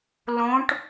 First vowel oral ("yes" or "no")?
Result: no